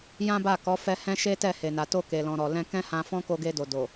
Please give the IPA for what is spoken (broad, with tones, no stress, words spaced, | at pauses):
jã˦ba˦˨kɔ˨˦ fɛ˦ hɛ̃˦ʃe˦tɛ˦˨ he˨na˨to˧ ke˨lɔ̃˨ɾɔ˨ lɛ̃˧kɛ̃˦hã˧ fɔ̃˦ ko˧ɡe˧do˨ do˨